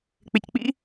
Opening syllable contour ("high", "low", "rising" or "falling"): low